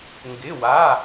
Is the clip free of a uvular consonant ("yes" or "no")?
yes